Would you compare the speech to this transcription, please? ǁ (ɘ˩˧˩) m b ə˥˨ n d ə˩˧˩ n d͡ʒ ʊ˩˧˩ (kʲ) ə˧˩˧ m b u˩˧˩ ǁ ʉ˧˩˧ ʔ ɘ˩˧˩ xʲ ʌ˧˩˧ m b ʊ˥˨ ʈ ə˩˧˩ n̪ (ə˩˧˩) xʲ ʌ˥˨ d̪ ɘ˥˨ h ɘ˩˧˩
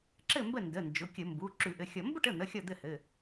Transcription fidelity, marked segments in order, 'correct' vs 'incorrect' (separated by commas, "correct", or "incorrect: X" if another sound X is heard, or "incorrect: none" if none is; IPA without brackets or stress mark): incorrect: ɘ˥˨, correct, correct